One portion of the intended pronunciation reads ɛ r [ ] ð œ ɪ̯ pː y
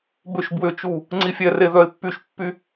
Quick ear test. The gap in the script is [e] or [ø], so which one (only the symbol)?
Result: e